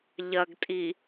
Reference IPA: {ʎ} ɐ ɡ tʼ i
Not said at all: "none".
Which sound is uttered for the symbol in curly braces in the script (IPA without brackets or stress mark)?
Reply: ʎ